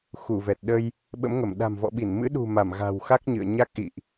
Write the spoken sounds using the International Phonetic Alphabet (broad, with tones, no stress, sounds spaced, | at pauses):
x u˧˩ v ɛ˨˩ t̚ ɗ ə˧ j | ɓ ə̰˧˥ m ŋ ə˧˩ m ɗ a̤˨˩ m v ɔ̰˧˨ ɓ i˧˩ n m ɨ̰˧˥ ɗ ṳ˨˩ m a˧˩ m ɣ a̤˨˩ w x a˦˥ k̚ ɲ ɨ̰˧˨ ə̯ ɲ a˦˥ k̚ ʔ ḭ˧˨ ʔ